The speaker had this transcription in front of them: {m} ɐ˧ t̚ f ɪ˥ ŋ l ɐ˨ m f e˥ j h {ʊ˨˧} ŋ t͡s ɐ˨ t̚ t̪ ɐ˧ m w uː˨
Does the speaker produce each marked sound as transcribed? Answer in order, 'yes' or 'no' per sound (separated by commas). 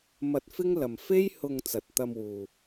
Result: yes, no